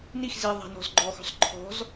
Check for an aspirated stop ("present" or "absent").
present